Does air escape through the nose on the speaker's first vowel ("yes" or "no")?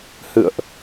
no